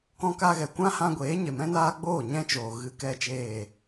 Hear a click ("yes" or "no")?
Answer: no